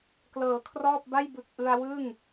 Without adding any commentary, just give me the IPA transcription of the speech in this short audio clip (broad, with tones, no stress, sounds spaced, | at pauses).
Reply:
k l ɤː˩˦ kʰ r ɔː˥˩ p̚ b a˥˩ j b ɯ˨˩ k̚ ʔ ɯ˧ a̯ w ɯ˥˩ ŋ